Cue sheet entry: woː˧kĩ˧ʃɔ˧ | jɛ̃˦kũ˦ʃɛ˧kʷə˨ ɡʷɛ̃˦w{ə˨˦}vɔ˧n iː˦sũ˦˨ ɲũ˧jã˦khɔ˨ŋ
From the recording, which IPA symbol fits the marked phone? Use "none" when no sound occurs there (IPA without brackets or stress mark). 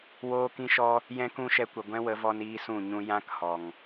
ə˨˦